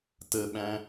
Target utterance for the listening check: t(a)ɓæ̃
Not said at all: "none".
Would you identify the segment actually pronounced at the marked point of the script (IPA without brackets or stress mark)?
ə